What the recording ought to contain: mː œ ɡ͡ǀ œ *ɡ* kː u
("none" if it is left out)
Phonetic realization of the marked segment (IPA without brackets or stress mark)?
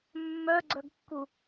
ɡ